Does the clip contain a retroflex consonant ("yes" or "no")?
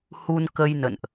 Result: no